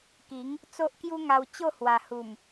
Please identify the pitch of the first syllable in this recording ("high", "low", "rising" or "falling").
rising